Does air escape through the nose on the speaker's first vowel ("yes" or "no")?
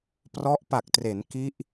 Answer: no